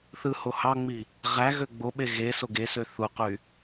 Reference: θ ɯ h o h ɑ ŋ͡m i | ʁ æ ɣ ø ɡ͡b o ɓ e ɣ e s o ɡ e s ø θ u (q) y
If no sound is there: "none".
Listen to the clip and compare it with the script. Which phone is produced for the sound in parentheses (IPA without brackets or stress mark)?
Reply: q